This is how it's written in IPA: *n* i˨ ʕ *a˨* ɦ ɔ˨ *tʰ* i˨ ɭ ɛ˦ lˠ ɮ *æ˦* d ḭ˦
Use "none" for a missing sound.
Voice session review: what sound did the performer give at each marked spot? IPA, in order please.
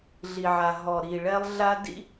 ɮ, a˨, ɾ, a˦

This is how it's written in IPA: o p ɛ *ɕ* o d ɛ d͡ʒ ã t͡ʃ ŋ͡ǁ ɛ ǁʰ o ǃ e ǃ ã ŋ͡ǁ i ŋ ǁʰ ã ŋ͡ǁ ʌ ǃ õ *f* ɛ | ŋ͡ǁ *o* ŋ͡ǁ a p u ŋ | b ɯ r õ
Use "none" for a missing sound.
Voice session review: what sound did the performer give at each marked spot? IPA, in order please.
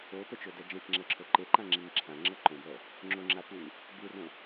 t͡ʃ, b, o

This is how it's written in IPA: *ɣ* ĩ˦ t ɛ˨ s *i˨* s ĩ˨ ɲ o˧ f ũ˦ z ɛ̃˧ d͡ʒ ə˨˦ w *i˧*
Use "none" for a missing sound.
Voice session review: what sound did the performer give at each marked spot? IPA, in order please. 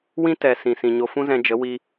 w, ĩ˨, i˧

